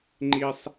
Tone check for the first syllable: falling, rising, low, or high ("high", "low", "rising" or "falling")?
high